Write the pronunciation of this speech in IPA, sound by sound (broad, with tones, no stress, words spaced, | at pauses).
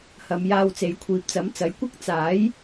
hɐ˨˧mjaː˧wt͡se˨˧j kʷʰiː˨p̚t͡sɐ˨˥mt͡sɐ˨˥j kʷɐ˥k̚ t͡saː˨˥j